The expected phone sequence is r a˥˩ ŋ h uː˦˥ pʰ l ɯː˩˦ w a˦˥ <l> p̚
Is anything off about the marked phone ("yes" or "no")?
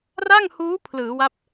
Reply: yes